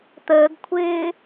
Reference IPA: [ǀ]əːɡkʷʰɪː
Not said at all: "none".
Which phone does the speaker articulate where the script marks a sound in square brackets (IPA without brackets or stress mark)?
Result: t̪